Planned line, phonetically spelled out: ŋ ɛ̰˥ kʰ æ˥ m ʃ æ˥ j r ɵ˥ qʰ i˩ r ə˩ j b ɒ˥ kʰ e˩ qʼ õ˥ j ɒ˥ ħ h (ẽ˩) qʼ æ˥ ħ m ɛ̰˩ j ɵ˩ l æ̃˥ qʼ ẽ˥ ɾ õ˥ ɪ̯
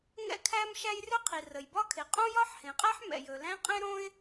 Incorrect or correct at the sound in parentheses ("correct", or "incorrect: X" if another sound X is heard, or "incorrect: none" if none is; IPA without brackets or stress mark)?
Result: correct